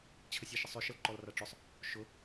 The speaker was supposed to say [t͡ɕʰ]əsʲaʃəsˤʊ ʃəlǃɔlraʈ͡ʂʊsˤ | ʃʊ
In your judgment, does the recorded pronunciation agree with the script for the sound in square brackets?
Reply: yes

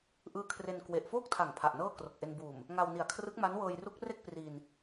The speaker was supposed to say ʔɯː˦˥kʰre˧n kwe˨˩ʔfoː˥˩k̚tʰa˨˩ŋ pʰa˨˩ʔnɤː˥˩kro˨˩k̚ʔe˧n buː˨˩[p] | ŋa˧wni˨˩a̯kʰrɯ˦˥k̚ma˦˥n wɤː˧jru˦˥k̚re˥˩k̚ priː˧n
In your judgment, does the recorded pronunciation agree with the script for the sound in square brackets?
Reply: no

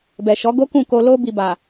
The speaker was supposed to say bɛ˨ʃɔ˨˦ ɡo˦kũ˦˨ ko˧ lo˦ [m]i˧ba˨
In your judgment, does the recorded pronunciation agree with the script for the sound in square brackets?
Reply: no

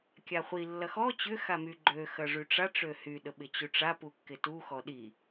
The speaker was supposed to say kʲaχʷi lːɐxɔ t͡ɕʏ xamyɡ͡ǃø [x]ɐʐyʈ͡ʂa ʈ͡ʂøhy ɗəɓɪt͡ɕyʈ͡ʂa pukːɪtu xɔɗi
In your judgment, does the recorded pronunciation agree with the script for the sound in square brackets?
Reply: yes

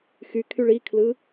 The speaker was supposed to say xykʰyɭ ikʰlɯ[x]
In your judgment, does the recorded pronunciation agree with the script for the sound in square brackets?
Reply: no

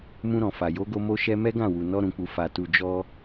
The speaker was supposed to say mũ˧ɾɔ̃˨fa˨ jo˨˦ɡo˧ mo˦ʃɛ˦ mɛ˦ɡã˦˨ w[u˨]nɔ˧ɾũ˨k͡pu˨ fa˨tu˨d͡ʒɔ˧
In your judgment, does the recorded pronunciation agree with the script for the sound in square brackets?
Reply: yes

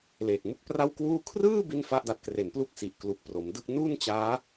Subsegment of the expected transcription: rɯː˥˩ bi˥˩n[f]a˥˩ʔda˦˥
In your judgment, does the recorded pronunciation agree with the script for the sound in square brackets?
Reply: yes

